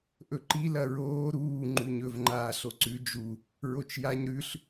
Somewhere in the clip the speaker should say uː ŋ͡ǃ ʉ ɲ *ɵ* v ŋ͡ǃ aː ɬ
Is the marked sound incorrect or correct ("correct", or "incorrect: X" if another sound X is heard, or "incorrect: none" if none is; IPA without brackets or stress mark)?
correct